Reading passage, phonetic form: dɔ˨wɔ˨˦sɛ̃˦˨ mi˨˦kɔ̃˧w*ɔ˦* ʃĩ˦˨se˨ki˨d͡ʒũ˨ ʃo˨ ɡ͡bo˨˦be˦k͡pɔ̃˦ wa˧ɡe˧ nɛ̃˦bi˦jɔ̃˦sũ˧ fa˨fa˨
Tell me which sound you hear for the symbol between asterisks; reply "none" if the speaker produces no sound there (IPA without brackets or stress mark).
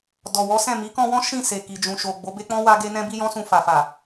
ɔ̃˦